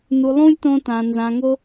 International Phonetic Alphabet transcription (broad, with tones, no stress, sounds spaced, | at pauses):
n u˧ lˠ ũ˦ lʲ t õ˦ t ã˧ n z ã˧ ŋ o˦